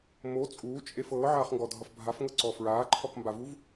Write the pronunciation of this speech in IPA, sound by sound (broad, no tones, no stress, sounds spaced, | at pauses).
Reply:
m o t͡sʼ uː t͡ʃʼ e f ɤː ʕ aː χ ŋ ɡ ɔ dʱ ʌ f bʱ a f ŋ ɤ ǀ ɔ f ɹ aː ǃʰ ɔ k m b a v u v